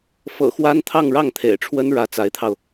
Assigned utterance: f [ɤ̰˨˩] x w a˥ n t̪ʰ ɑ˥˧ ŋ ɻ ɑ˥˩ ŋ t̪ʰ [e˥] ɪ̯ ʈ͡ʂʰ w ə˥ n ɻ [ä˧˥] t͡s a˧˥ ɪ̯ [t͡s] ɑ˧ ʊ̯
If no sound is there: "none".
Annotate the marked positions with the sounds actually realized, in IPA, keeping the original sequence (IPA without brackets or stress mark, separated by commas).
ɤ̰˨˩, ḛ˨˩, ä˧˥, t̪ʰ